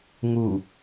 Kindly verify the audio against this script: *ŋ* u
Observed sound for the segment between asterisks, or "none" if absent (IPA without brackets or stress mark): ŋ